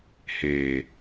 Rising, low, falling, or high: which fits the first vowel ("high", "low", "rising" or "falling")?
low